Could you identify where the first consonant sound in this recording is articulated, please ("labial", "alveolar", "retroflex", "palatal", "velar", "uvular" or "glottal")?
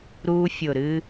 alveolar